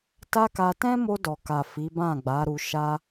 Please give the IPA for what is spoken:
t a˦ k a˧ t ɛ̃˦ m o˧ d ɔ˨ k a˨ f i˨˦ b ã˦˨ ɡ͡b a˨˦ ɾ u˧ ʃ a˦

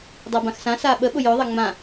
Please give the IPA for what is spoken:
dˤ a b ã x s ã s a ɓ ə ɓ ʊ j œ ðˤ a ŋ͡m ã

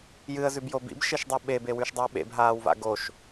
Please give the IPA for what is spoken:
j ɨ ə̯ z ʉ b j o b ḭ b ʃ e ʃ dˤ u ɓ e b e w ʉ ʃ dˤ ɨ ə̯ ɓ ḛ b ɦ aː w v a̰ ɡ o ʃ

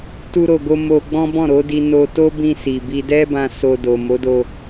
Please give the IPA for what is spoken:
t u˦ ɾ o˧ ɡ o˦ m o˧ ɡ͡b ɔ̃˦ b ɔ̃˦˨ ɾ o˨˦ d i˧ n o˧ t o˦ b ĩ˧ s i˨ b i˧ d ɛ˦ b ã˧ s o˧ d o˨ m o˨˦ d o˧

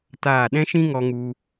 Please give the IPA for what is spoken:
t aː˦˨ ɗ ɛ̃˦ ʃ ĩ˦ ŋ ɔ˧ ŋ u˧

